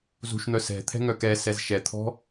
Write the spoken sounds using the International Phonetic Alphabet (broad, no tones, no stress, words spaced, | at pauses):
zṳʃn̪œ sɛ̤t̪ʰɛ̤ ŋœkɛsɛz ʃɛt̪ʰɔ̤